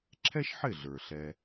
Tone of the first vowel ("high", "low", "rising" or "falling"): high